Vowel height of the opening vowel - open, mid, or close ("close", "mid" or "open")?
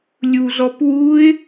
close